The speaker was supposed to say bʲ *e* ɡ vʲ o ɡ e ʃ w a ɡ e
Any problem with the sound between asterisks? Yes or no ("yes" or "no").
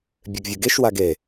no